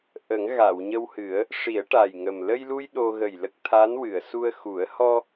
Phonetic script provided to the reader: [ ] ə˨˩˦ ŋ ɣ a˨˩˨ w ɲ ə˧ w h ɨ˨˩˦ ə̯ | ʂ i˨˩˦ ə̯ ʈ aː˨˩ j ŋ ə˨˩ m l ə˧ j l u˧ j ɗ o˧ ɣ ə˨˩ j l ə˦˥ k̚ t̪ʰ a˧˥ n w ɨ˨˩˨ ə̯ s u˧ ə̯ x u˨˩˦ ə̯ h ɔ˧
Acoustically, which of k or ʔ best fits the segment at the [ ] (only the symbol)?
ʔ